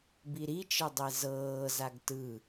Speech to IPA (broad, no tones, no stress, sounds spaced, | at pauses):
b i ɾ i t͡ʃ ɤ dˤ e z ɤː z a ɡ t ɯ